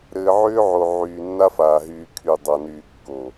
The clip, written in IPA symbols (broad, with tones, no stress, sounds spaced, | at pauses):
ɾ ɘː˨ ʕ ʏː˦ ʕ o˨ ʕ yː˨ nː a˦ f aː˨ ɦ yː˨ kʰ y˨ dˤ a˨ n yː˨ kː o˨